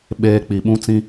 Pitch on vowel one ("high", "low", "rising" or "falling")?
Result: high